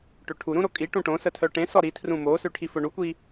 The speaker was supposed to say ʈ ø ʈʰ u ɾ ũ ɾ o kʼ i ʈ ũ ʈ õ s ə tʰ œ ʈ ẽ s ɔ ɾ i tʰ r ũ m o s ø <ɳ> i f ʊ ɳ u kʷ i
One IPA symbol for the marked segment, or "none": ʈʰ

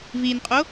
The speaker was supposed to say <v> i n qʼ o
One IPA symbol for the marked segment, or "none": v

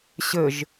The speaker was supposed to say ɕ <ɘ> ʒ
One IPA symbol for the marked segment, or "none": ɘ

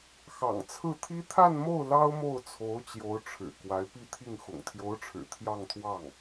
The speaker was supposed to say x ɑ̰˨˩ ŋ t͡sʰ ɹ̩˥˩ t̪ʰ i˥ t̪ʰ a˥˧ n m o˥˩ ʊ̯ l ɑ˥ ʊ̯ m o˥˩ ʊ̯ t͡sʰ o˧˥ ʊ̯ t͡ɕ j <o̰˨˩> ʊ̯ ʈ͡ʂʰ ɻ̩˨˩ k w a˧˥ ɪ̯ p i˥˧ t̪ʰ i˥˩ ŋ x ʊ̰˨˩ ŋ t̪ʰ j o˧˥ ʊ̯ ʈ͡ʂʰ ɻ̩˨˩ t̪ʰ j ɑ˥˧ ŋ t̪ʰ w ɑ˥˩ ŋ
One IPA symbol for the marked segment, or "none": o˧˥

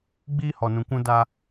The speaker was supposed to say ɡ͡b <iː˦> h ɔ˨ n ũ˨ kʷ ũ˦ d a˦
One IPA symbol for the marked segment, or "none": iː˦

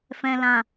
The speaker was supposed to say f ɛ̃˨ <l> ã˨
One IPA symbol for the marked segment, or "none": l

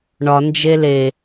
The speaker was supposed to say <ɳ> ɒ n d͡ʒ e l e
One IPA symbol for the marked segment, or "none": ɳ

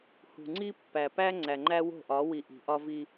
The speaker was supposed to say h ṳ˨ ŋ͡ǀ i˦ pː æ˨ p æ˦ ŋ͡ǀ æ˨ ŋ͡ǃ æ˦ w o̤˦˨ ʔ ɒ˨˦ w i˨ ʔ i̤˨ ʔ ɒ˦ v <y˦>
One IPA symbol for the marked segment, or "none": i˦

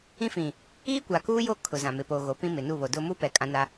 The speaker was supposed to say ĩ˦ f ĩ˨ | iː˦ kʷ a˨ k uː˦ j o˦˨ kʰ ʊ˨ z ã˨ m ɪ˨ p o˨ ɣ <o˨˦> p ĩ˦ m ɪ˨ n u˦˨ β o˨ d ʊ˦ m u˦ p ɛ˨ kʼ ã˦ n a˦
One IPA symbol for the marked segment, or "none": o˨˦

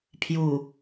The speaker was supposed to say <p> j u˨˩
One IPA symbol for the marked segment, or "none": pʰ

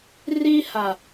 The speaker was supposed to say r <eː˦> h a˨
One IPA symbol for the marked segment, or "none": iː˦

